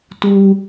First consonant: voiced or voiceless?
voiceless